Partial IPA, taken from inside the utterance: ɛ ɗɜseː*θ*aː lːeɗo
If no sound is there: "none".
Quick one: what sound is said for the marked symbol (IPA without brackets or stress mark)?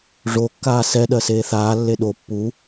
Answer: θ